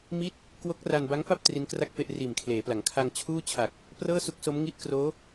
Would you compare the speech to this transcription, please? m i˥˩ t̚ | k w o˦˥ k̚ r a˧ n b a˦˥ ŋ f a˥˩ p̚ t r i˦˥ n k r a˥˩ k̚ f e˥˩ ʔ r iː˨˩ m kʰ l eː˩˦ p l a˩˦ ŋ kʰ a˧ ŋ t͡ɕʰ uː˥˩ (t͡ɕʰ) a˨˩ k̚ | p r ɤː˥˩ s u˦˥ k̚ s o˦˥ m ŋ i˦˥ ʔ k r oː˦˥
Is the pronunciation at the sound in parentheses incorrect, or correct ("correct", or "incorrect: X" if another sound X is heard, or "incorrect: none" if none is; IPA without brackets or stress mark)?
correct